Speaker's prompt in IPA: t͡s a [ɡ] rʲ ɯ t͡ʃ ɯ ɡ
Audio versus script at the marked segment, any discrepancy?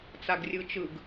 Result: no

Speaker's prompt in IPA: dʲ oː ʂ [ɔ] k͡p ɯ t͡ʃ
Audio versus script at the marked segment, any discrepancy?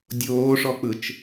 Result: no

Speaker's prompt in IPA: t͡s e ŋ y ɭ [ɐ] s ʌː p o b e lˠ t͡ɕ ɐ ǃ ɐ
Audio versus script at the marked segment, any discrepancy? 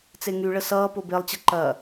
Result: yes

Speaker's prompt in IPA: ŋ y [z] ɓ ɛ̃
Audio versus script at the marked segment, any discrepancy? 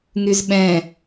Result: no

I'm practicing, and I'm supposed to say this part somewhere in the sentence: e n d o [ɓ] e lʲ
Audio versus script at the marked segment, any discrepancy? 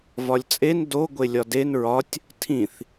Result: yes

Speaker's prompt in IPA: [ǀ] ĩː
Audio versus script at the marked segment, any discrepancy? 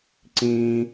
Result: no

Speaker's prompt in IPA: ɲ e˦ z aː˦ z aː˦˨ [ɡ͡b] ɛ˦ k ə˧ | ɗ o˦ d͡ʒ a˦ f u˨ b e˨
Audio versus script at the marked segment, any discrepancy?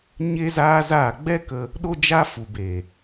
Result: no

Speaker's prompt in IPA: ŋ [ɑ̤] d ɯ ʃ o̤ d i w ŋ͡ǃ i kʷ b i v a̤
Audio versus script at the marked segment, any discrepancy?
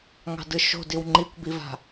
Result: no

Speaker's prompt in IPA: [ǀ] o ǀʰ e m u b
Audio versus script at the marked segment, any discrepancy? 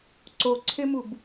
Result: no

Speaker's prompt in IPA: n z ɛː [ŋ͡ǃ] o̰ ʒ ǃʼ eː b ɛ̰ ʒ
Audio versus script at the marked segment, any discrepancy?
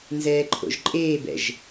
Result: yes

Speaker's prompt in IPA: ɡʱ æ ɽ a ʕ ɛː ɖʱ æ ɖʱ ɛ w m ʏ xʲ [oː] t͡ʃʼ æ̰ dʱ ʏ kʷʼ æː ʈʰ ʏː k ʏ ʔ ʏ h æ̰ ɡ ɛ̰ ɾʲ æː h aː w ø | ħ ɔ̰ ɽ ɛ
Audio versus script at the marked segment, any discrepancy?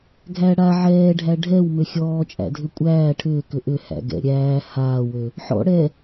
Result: yes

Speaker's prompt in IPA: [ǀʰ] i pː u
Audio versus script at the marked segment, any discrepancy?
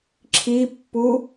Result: yes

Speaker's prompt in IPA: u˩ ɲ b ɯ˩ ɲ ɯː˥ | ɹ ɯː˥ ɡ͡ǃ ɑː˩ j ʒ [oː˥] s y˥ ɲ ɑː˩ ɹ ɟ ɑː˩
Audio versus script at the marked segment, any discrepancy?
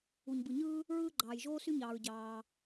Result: no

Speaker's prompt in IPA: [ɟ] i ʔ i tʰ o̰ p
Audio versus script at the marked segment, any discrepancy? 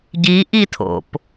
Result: no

